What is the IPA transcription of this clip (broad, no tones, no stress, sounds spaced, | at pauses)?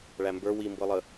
ɭ æ m b ə˞ w i m b ɤ lˠ ə